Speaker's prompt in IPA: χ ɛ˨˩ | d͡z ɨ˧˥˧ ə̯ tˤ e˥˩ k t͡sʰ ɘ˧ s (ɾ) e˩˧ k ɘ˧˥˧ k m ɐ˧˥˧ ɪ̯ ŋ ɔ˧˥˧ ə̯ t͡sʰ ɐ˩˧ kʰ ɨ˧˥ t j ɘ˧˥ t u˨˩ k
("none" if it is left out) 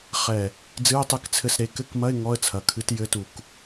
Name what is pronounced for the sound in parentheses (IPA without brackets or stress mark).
ɾ